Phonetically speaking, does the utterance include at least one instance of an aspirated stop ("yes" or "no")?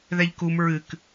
no